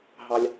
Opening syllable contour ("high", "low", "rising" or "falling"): low